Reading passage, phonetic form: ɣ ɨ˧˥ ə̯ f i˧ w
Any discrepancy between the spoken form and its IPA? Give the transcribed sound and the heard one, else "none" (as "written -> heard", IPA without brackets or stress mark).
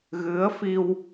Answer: none